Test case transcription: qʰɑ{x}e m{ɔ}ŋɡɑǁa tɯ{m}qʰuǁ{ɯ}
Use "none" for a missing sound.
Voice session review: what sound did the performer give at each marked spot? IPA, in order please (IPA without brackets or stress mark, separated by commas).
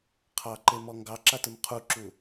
ǃ, ɔ, m, u